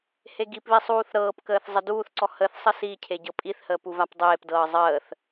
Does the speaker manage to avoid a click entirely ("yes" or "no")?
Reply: no